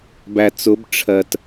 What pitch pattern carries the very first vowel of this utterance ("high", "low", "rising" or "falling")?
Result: low